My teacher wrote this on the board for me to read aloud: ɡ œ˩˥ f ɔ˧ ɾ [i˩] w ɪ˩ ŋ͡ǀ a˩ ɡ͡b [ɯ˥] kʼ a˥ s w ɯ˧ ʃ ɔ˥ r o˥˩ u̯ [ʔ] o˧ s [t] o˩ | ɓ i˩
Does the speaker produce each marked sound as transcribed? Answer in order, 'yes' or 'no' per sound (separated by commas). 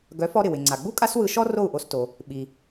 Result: no, no, yes, yes